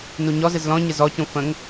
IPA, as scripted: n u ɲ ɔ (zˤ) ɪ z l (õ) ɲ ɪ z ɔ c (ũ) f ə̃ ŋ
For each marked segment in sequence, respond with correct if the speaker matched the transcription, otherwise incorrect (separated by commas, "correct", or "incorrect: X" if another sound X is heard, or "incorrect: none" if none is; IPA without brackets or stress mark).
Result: incorrect: z, incorrect: ɔ̃, correct